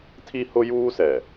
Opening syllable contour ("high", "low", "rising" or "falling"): high